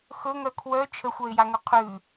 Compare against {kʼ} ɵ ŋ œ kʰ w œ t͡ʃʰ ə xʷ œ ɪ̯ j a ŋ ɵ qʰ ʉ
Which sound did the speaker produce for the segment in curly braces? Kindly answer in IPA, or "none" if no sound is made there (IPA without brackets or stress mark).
x